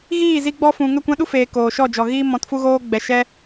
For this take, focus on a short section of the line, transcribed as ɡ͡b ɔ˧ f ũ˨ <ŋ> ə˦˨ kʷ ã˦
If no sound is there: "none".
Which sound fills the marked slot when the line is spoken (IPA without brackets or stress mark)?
ŋ